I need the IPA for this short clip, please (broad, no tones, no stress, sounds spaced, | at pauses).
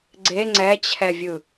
ɡ͡ǀ e ŋ͡ǀ ɛ t͡ɕʰ ɛ vʲ ɯ